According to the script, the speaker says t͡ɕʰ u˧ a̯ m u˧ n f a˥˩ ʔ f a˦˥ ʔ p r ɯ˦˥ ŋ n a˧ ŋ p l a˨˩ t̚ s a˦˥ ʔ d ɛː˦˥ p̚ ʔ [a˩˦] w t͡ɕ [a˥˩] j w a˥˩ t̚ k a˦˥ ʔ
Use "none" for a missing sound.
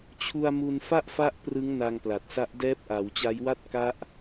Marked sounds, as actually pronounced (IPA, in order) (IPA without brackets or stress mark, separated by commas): a˩˦, a˦˥